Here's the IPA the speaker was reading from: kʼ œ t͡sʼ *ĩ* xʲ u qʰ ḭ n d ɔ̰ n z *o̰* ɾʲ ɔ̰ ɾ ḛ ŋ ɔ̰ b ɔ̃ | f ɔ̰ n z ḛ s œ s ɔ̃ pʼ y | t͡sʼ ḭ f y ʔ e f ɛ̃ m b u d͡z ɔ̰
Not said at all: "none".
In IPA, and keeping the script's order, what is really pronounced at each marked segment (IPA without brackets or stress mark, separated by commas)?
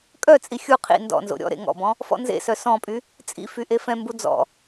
i, o̰